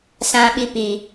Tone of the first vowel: low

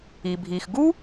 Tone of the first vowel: low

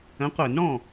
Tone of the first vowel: rising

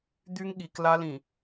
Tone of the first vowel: high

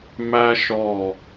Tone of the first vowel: high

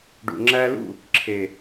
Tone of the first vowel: low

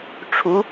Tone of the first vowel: rising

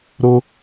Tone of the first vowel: high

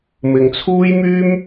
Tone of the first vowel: low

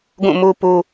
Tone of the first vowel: falling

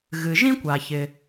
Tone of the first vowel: low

